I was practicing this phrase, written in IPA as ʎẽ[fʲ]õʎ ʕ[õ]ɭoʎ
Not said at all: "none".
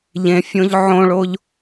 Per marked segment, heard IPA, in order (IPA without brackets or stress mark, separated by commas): fʲ, õ